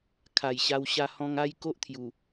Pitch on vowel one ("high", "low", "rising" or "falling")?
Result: low